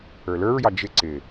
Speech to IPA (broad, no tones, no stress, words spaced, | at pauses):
ə˞lə˞ɹjɑ d͡ʒɪ ǀɪ